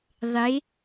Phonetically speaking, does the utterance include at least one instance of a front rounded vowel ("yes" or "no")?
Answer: no